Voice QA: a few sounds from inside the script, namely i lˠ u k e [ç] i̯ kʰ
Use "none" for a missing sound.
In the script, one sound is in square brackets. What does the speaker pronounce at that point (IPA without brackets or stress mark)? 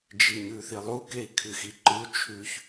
none